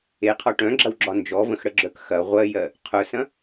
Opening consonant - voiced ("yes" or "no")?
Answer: no